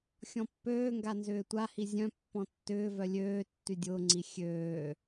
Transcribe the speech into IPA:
xʲɔ̃pːøːŋɡa nzʏːtʷahi zʲœ̃ pːɔ̃tːʏːvœ lʲøː tːydʲʊːŋ͡ǀi xʲøː

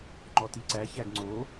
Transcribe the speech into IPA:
ŋ͡ǃɔtiǀæ çæɡŋ͡ǀo

